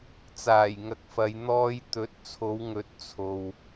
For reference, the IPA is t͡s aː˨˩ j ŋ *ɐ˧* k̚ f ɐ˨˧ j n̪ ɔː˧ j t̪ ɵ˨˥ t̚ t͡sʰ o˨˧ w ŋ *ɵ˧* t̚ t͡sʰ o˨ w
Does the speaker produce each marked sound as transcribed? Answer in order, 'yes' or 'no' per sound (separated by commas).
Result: yes, no